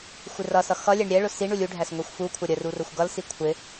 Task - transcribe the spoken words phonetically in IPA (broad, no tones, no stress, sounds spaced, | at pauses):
xʷ ɪ r ʌ s ʌ x ʌ lʲ ɛ ɳ ɾʲ ɛ ɭ ʊ s i ɳ u lʲ u ɖʱ æ s ŋʷ i xʷ f u kʷʰ ʌ ɾʲ ə r u r ʊ xʷ ɡ ʌ l s i kʷʰ ɪ